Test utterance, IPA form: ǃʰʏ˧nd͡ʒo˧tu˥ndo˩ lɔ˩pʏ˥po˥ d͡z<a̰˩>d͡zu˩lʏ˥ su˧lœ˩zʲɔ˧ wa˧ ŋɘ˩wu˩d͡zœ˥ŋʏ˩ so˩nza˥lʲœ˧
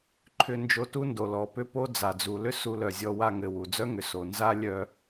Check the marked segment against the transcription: incorrect: a˩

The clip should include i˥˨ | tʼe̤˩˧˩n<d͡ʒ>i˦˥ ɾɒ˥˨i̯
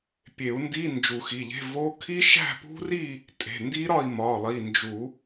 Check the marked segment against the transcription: incorrect: d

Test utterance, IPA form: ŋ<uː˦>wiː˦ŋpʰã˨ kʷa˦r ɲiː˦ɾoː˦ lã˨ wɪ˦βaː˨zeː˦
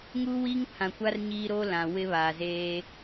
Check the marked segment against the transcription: correct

